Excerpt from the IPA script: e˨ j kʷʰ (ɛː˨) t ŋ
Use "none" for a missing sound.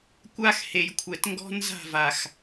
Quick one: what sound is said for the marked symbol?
ɛ˨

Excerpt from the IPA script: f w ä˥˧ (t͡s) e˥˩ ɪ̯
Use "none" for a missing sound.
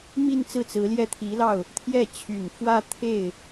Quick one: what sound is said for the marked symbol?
t̪ʰ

